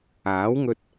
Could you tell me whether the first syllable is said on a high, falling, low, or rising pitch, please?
rising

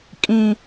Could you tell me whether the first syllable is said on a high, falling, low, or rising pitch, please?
high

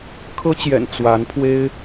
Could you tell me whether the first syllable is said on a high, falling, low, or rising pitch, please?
high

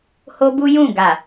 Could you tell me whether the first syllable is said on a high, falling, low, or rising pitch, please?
high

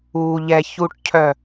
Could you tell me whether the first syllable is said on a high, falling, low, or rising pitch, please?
low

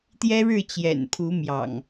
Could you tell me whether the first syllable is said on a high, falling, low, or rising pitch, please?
high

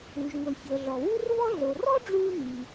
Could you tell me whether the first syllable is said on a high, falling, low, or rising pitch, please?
low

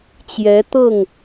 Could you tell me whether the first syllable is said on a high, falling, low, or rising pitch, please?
rising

